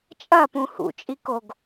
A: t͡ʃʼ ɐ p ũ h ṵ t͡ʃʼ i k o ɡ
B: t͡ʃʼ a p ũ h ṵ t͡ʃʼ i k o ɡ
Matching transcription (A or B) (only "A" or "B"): A